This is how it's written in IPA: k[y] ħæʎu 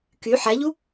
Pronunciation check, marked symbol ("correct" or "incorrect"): correct